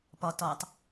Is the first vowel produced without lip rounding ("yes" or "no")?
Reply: no